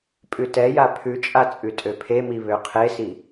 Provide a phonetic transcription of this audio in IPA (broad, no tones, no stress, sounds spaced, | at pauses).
pʼ ʉ t ɛ j a pʰ ʉ t͡ʃʼ a t͡sʼ ʉ tʼ ø pʰ e m i β ø qʰ e s i